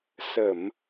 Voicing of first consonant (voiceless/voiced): voiceless